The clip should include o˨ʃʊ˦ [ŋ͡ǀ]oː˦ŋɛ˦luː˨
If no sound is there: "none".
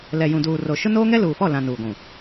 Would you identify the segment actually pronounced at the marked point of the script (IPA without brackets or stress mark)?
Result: n